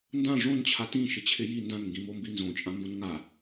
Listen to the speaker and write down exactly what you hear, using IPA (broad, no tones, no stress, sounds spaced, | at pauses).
n d ã ʐ õ n t͡ɕʰ a t ĩ ʃ ɪ t͡ɕʰ ɪ j i n d ã n ŋ ɡ ĩ m o m b i n z õ t͡ʃʼ ã m b õ n ŋ a